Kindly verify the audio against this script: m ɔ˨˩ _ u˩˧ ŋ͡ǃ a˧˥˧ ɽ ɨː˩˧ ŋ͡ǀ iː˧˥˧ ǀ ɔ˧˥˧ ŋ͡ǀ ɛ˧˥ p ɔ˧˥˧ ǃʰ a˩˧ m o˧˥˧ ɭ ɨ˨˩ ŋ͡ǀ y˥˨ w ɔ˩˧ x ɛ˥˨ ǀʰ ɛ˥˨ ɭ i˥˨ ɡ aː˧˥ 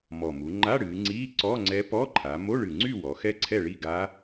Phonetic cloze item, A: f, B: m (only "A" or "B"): B